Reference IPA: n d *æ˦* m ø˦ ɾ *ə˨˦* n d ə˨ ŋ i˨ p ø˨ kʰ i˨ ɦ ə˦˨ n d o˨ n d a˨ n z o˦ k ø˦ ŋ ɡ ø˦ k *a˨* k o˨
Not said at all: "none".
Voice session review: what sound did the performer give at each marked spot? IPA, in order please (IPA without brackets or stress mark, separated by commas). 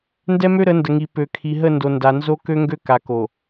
ɛ˦, ə˨˦, a˨